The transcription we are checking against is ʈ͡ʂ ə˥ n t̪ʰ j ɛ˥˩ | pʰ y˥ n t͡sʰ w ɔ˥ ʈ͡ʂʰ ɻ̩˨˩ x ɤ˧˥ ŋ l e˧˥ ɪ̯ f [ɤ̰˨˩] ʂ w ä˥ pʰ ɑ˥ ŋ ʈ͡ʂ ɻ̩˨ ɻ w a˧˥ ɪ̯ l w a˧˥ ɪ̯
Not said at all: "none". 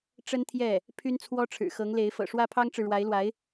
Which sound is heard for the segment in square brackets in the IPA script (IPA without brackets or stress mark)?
ɤ̰˨˩